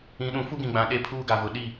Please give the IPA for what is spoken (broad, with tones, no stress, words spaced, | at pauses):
ĩ˨˦ɗũ˨˦ fu˦ɡĩ˨ɡ͡bã˨ ɗe˦pʰuː˦ɡa˨vʊ˨ ɗi˦˨